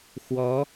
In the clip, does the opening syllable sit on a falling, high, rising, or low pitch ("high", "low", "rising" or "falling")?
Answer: rising